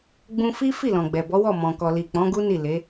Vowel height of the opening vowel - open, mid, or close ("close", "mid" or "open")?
close